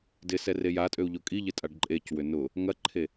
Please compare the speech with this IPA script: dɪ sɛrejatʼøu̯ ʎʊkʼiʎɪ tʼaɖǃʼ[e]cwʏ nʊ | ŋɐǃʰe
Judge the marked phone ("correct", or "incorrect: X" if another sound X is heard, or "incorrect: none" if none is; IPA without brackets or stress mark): correct